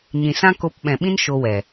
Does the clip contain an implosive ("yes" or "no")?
yes